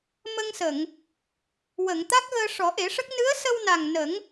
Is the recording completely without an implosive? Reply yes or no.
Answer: yes